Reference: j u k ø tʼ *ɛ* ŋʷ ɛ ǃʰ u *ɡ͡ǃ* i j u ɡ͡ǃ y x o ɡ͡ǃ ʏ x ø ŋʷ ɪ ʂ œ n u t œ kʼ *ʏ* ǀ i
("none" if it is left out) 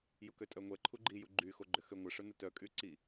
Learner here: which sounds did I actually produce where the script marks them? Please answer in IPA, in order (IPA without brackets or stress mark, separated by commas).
œ, ɡ͡ǃ, y